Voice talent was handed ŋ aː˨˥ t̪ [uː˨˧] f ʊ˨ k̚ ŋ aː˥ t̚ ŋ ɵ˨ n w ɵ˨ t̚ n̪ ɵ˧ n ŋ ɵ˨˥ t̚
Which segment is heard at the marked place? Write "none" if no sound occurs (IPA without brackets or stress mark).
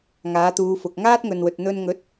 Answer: uː˨˧